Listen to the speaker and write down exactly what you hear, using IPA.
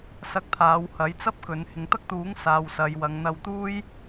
sɐ˧k̚t̪ʰaː˨˧whɐ˨˥j t͡sɐ˥p̚kɵ˨˧n hɪ˨ŋt̪ɐ˥k̚t̪uː˨˥ŋ saː˨wsɐ˨j wɐ˨˧ŋ n̪ɐ˧wt̪uː˥j

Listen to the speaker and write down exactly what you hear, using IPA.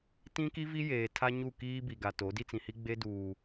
tĩ˦ki˦vi˦ jeː˨ tʰa˦ɲu˦˨kiː˦ bi˨ɡa˨ to˨˦ di˦t͡sĩ˨hi˦ ɡ͡be˦duː˨

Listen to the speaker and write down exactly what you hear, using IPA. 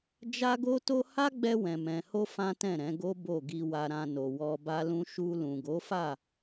d͡ʒa˦ɡo˦to˦ ha˦ɡ͡bɛ˧wɛ̃˨mɛ̃˨ ho˧ fã˦tɛ̃˦˨ɾɛ̃˨˦ɡo˦ bo˦˨ɡi˧wa˧ɾã˧ no˨ wɔ˧ba˦lũ˦ ʃu˧lũ˨ ɡo˨˦fa˦˨

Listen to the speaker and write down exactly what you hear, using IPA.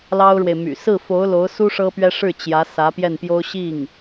lɑ˥ʊ̯ɻwe˨ɪ̯my̰˨˩ sɹ̩˥˩fo˧˥ʊ̯ lo˧˥ʊ̯su˥ ʂɤ˥pɥɛ˥ ʂɻ̩˥˩ t͡ɕjä˧˥ sä˧˥pjɛ˥˩npjo˥ʊ̯ ɕi˥˩ŋ

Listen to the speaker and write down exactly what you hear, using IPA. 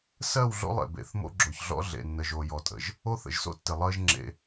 sɜ˦˨wɮo̰˦lˠḛ˨ bḛ˨˦θmo̰˦ɡ͡ǁo˨çɮɔ̰˦ ɮḛ˨nːə˨ʒ o˨jɔ˨tʼə̰˨ʒ | o˦θə̰˨ʒso̰˦tːɪ˨ lˠɜ˦ʒ ŋ͡ǁḛ˦

